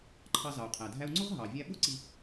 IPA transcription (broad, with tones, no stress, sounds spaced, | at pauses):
ǃʰ ɑ˧ z ɑ˩ u̯ qʰ æ˩ dʱ æ˧ u̯ ŋ͡ǀ ʊ˥ ʁ ɦ ɑ˩ vʲ æ˧ ɓ ʊ˥ ǀ i˧